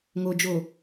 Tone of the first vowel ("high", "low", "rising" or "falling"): low